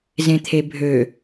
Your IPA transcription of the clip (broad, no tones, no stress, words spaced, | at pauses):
zẽt̪ʰebʱø